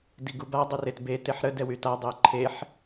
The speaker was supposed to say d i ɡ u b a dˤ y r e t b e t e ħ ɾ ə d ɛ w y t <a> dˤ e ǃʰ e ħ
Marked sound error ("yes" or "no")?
no